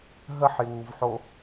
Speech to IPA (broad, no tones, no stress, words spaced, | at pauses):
ɦəħjuːvħo